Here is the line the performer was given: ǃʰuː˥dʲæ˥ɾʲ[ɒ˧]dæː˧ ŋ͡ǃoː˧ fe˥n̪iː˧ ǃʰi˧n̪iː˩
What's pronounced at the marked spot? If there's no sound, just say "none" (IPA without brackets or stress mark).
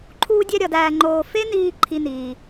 ɒ˧